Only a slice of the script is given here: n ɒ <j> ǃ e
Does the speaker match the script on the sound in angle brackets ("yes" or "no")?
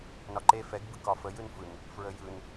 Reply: no